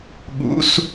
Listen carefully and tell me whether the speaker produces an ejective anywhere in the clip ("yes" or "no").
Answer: no